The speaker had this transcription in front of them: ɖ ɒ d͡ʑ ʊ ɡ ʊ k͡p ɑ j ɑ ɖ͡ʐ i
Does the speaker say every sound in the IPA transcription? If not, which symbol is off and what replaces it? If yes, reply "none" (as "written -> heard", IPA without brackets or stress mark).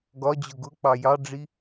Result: ɖ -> ɡ